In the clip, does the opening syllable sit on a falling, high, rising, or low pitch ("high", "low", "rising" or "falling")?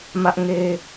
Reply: high